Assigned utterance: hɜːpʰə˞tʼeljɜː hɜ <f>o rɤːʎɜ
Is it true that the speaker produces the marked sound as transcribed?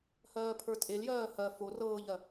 yes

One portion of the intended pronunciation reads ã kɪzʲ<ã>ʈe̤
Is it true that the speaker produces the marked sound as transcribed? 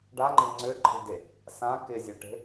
no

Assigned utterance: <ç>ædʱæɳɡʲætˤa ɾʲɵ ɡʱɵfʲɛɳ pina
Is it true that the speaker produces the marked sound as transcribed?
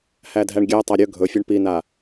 no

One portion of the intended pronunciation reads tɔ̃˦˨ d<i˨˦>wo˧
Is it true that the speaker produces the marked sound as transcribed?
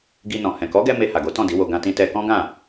yes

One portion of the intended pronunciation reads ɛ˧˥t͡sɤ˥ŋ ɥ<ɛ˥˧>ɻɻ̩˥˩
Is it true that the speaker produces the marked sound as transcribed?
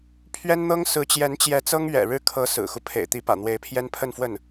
no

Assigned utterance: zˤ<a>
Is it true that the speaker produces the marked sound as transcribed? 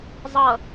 no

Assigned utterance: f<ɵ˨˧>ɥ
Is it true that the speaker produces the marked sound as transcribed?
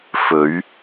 yes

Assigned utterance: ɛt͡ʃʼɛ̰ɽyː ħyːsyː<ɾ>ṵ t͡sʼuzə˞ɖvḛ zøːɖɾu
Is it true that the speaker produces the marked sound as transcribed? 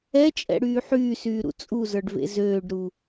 yes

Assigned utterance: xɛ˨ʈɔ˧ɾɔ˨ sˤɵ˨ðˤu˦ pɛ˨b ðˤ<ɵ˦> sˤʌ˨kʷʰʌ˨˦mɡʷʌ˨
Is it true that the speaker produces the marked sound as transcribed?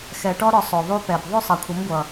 yes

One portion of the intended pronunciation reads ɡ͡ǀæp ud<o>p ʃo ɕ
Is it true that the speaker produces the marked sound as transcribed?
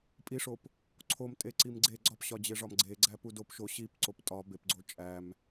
yes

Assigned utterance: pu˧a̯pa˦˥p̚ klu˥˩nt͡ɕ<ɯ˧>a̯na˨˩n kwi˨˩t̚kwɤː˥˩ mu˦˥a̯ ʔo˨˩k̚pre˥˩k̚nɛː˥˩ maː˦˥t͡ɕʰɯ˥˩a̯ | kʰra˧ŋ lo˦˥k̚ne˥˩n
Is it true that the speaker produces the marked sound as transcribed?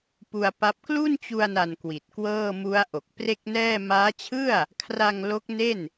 no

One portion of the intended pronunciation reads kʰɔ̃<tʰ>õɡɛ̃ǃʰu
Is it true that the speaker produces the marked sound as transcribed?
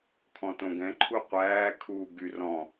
no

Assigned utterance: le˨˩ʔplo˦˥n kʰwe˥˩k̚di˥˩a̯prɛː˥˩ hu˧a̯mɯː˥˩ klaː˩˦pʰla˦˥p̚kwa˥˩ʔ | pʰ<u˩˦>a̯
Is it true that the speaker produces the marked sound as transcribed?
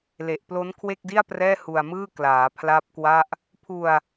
no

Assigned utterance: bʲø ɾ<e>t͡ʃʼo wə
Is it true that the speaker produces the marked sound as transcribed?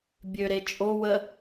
yes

